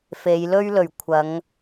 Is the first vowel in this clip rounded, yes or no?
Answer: no